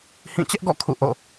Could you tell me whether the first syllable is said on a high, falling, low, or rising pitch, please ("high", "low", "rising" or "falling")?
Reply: falling